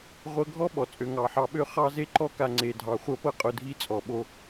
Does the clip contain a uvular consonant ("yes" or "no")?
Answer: yes